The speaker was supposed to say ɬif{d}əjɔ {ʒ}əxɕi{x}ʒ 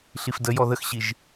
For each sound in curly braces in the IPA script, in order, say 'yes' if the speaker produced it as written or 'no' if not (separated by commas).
yes, no, no